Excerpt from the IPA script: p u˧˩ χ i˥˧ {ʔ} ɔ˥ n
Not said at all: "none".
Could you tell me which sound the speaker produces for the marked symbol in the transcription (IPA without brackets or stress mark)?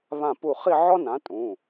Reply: ʕ